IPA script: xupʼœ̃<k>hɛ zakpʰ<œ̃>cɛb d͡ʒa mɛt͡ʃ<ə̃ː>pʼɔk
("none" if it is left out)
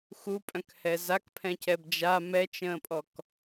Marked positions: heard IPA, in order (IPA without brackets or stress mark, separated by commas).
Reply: k, ɛ̃, ə̃ː